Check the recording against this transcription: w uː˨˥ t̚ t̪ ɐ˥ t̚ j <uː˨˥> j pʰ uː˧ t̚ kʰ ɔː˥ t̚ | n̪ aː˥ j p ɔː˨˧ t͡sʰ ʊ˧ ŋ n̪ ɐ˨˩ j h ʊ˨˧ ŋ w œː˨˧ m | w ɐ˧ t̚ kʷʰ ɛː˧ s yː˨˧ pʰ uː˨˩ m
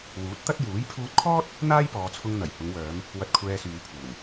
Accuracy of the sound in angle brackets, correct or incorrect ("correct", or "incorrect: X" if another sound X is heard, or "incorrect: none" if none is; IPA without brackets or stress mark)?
correct